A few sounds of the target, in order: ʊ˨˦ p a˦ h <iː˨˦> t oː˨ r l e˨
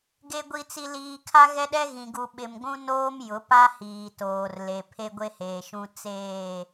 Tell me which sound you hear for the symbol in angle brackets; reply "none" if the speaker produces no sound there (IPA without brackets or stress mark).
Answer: iː˨